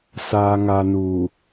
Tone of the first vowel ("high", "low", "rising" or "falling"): low